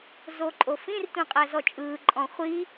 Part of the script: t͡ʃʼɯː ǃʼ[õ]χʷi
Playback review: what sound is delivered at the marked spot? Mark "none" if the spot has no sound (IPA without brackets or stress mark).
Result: ɔ̃